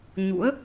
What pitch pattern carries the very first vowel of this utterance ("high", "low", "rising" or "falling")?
rising